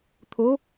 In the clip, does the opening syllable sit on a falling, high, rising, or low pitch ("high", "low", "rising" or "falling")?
rising